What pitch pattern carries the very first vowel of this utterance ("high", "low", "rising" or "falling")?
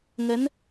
rising